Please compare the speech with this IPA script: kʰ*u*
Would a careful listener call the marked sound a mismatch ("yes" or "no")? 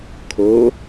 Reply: yes